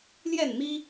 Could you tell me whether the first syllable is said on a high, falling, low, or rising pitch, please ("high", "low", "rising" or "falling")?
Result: falling